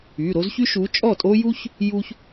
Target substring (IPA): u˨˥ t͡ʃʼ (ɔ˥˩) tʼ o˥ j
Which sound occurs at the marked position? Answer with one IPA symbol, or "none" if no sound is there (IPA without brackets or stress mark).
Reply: ɔ˥˩